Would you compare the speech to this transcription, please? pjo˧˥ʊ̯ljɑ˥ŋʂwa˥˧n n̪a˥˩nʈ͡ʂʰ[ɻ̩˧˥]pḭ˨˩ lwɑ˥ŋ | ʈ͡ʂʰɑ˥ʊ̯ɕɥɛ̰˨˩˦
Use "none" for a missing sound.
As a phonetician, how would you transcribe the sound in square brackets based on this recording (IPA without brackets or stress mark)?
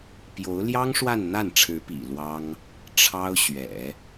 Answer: ɻ̩˧˥